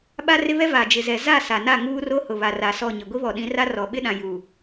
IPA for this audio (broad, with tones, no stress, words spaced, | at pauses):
ɓa˦rɪ˦βɛ˦ va˨d͡ʒɪ˨zɛ˨ za˦˨ sa˨na˦˨ ŋuː˦ro˦hʊ˨ βa˨ra˨˦ sɔ˦˨ɲɪ˨ ɡʷi˦βɔ˨ɗĩ˨˦ra˦ rɔ˨ɓɪ˦ɗã˨ ju˨